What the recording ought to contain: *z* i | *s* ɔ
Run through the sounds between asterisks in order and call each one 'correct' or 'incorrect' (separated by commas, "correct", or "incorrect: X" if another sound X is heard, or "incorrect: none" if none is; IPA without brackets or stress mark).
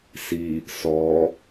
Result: incorrect: s, correct